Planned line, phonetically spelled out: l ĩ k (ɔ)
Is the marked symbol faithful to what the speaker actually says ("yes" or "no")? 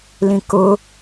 no